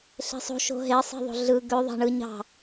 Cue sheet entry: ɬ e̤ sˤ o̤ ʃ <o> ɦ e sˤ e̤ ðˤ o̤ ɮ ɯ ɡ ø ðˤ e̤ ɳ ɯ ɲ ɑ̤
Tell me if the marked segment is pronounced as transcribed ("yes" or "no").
no